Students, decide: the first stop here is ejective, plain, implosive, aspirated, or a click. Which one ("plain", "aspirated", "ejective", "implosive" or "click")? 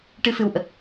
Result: plain